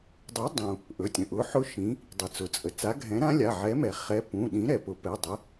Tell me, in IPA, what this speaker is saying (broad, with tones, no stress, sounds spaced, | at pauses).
dˤ u˨˥ dˤ ũ˩ | ʔ ɵ˩˧˩ tʲ ə̃˩ ʔ ʊ˩˧˩ ħ ʊ˦˥ ʃ ĩ˩˧ | dˤ i˩ t͡s ʊ˩˧ t͡sʼ ə˩ t͡s a˨˥ ɡʱ ɛ̃˨˥ ɾ ã˦˥ lʲ a˩˧˩ ʕ ɛ˨˥ m ɛ˩ χ ɛ˨˥ p ũ˩˧˩ ɗ ĩ˨˥ ɾ ɛ˩ p ʊ˨˥ p ɛ˩˧˩ dˤ ə˨˥